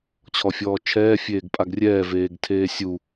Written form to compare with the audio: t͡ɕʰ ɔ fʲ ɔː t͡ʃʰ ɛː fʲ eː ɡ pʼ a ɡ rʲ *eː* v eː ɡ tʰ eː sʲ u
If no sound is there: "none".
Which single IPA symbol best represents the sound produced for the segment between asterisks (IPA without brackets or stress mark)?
ɛː